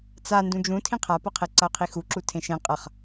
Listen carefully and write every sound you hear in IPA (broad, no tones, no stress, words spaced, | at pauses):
t͡sa ndũd͡ʒũ tʰĩqʰapʌqʰe ǀʌo̯qʰixuǁu tʰẽʃẽ qʼʌχ